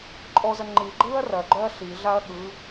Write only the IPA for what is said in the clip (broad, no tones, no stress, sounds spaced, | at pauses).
ǃʼ ɔ z ɐ ŋ͡ǃ i ɡ͡ǃ ɯː ɐ̯ r ɐ ɡ͡ǃ œ ɐ̯ ɬ i ɮ a ɐ̯ ɠ ɯ